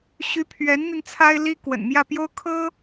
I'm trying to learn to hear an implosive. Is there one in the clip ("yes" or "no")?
no